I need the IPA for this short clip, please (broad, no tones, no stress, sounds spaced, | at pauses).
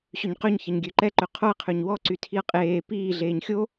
ɕ ø ɲ q ø ɲ ç ɐ ɲ ɡʲ ø ǃ ɛ ǃ ø qʰ o ɐ̯ qʰ ø ɲ w ɔ ǀ y tʰ i ɐ̯ qʼ eː p iː ɮ eː ɲ xʲ o